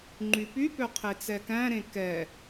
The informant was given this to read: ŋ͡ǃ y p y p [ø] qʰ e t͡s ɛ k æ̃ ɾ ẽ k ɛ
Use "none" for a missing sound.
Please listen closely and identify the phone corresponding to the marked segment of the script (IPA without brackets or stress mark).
ø